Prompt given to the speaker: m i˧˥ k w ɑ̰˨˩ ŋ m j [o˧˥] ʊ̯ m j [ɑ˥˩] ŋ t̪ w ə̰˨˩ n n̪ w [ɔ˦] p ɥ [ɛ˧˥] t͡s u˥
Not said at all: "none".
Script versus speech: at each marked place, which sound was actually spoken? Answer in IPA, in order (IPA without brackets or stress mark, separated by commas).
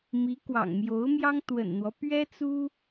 o˧˥, ɑ˥, ɔ˦, ɛ˥